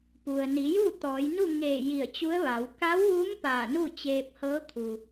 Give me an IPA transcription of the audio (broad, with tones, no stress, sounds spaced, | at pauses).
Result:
p u˩ ə̯ n i˩˧ j u˥˨ t̪ ɔː˩˧ j n u˥˨ ŋ eː˧˩ j i˧˩ ə̯ t͡ɕ u˧˥ ə̯ ʋ a˩˧ w k a˧˥ w ʋ u˧˥ m p aː˧˩ n u˥˨ t͡ɕ eː˧ p̚ h ɤː˧˥ kʰ u˩